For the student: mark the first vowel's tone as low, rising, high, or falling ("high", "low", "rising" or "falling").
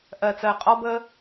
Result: low